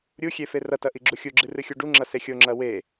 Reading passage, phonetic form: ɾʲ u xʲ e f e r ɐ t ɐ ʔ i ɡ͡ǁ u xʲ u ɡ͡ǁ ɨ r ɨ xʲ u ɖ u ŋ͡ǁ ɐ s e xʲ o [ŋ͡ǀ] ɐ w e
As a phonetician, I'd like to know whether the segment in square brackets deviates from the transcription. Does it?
yes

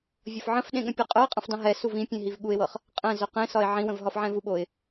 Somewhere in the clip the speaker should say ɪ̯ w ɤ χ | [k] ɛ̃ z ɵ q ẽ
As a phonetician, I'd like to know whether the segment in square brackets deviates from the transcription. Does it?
yes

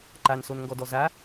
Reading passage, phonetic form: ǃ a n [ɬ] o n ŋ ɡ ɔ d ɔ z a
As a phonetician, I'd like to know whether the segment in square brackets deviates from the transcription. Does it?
yes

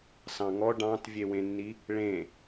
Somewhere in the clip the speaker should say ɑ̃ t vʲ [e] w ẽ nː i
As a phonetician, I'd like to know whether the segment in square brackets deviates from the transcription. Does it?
no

